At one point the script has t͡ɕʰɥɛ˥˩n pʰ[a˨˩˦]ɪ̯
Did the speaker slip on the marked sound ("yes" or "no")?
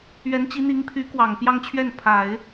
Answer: no